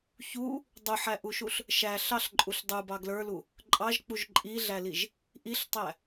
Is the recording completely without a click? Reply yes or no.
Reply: no